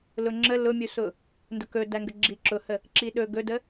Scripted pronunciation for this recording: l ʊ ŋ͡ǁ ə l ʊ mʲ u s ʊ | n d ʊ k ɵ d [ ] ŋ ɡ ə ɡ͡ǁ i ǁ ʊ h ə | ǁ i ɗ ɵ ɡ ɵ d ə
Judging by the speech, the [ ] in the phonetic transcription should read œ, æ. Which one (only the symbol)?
æ